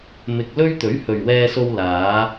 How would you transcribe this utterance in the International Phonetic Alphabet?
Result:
m ɪ˧ k̚ l ɵ˥ ɥ t̪ ɵ˨˥ ɥ h ɵ˨ ɥ w ɛː˧ s o˧ w l aː˨˧

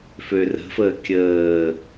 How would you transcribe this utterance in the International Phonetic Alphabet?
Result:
f ø r ə̤ f əː kʲ əː

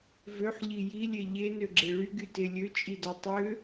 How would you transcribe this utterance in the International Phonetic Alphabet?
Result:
v ø ħ ʎ i j i lʲ e ʎ e n ø ɡ͡ǁ e ɭ y ɡ y t e lʲ ø t͡ʃʼ i d ɔ tˤ ø

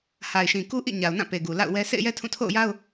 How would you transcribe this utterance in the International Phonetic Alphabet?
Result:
h a˨ ɪ̯ ʃ ĩ˨ k u˦ ʔ ḭ˦˨ ɲ a˨ ʊ̯ n ã˦˨ p e˨ ɡ u˨ l a̰˦˨ ʊ̯ w ɛ˦ sʰ ḛ˦˨ ɪ̯ j ɛ˦ tʰ ũ˦˨ tʰ o̰˦˨ ʊ̯ j a˦ ʊ̯

